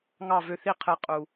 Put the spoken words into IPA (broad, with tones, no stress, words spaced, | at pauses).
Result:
ŋɑ˦˨vø˧θi˦˨ qʰɯ˨˦qʼu˨